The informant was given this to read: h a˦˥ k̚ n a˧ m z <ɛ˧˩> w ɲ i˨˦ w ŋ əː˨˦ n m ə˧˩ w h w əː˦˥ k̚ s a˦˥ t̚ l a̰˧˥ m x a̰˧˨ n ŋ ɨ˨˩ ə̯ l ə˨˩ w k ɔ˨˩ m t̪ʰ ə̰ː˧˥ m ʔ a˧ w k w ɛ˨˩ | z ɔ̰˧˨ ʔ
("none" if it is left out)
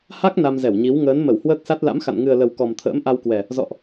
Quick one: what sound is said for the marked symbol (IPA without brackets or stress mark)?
ɛ˧˩